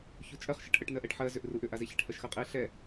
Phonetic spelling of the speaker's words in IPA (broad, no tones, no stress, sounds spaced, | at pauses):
ç u t͡ʃʼ ɜ χ ʃ ɛ ʈ ʔ ə ʈ n ɜ ʔ ɛ ʈ ħ ɜ z ʏ ʔ r u ʔ ʏ ʔ a z e ç ɛ ʈ h ɜ ʃ x ɜ qʼ e ɬ ɛ